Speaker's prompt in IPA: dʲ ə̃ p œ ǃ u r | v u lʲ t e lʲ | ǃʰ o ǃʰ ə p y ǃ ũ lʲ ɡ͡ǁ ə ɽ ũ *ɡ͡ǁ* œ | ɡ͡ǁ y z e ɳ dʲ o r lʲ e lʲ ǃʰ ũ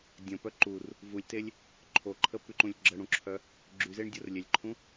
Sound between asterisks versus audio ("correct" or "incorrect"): incorrect